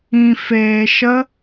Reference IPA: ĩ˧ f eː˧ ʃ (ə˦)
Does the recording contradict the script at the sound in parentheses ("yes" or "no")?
no